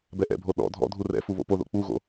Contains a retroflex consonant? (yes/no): no